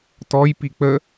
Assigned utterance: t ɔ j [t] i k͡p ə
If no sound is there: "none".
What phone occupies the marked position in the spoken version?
p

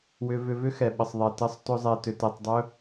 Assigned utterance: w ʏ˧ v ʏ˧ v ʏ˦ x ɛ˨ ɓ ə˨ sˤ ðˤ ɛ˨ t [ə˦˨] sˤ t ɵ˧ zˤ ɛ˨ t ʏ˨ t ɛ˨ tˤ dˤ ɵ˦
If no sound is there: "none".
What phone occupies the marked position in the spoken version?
ə˧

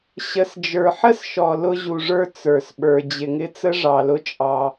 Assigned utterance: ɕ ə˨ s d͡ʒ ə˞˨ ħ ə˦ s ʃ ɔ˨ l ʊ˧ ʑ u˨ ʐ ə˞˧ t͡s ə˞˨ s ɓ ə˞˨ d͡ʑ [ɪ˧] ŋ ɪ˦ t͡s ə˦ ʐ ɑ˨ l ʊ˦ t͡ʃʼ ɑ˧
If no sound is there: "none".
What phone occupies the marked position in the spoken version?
ɪ˨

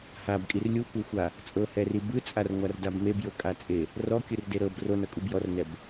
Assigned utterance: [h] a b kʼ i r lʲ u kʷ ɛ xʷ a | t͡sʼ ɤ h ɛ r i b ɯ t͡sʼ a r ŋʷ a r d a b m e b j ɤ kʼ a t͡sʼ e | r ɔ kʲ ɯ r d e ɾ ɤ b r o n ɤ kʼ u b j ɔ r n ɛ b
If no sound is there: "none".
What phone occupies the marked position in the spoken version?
h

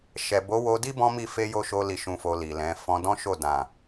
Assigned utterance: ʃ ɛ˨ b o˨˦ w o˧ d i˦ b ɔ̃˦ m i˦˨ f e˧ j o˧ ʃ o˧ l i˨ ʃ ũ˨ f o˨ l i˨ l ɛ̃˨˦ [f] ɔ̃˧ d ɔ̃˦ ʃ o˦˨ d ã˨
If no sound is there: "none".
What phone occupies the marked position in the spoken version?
f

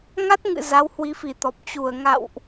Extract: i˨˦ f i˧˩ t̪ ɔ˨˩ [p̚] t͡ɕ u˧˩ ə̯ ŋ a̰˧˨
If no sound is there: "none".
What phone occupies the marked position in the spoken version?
p̚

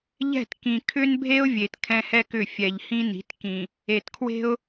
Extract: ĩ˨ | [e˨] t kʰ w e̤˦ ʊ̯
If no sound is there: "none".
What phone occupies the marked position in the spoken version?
e˨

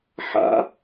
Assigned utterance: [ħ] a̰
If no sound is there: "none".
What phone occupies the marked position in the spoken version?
ħ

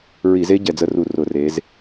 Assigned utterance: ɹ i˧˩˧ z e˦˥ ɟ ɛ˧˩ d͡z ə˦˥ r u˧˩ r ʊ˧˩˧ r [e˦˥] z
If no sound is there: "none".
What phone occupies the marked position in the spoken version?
e˩˧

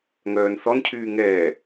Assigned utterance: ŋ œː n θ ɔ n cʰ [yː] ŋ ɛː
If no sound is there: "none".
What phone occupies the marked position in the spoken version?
yː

